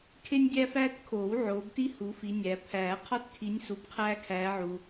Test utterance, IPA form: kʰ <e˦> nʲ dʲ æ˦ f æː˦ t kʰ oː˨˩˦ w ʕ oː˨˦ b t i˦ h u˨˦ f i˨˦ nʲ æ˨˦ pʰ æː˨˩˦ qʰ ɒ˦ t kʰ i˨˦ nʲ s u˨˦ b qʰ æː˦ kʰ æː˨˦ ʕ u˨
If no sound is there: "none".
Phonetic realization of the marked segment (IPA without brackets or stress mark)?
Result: e˦